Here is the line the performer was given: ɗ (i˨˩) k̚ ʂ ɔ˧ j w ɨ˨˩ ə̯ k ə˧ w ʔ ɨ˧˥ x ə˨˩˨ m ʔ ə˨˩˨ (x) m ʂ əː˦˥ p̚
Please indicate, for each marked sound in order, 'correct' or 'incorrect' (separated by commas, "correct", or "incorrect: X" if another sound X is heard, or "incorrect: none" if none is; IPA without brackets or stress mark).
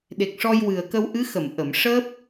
incorrect: e˨˩, incorrect: none